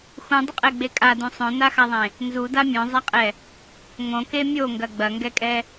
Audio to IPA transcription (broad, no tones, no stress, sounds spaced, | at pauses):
x ũ dˤ ɘ qʼ ɛ ɡ͡b e kʼ a d ũ sˤ õ n a x a ðˤ ẽ | n z u d a mʲ õ zˤ a qʼ ɛ | ŋ õ k e mʲ o ŋ ɡ ɐ ɡ͡b ɐ ŋ ɡ ɛ kʼ ɛ